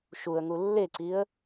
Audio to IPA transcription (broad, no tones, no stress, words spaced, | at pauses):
ʃuə̯ŋu lːeǀiə̯